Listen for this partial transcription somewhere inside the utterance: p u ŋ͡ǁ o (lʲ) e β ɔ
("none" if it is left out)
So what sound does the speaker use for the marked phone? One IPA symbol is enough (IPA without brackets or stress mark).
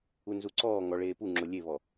lʲ